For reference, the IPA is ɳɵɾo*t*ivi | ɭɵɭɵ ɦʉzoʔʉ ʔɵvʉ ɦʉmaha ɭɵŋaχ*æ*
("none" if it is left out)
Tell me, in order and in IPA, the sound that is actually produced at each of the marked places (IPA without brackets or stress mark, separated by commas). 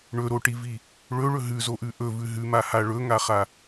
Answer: ʈ, a